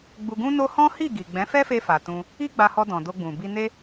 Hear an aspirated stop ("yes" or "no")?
no